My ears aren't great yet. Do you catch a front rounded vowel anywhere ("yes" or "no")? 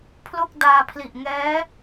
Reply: no